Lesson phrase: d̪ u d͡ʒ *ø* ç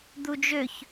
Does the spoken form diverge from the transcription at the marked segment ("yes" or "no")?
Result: no